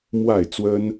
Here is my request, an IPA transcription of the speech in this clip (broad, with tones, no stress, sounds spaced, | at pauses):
m w a˥˨ ɪ̯ t͡s w ə˦ n